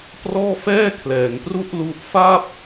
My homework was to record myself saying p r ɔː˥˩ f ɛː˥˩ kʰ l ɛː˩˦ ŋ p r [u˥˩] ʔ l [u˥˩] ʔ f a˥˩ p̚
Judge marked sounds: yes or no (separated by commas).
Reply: yes, yes